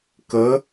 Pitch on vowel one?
rising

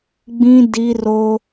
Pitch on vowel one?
high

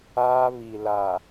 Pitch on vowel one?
high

